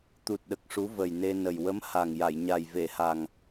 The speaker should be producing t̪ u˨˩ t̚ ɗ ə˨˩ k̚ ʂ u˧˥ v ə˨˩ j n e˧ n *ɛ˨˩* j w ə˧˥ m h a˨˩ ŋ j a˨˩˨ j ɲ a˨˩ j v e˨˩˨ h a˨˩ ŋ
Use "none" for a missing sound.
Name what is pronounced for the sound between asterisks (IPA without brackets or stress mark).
ə˨˩